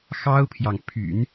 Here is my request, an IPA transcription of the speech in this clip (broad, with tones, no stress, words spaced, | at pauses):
xɑ˥ʊ̯pʰjɑ˨ŋ pʰy̰˨˩˦n